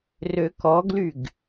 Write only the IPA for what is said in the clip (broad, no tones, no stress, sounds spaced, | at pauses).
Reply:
r ø k ɔ ɡ l y ɡ